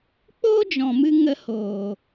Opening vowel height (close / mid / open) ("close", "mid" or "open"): mid